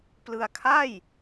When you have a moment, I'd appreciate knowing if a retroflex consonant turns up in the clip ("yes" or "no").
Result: no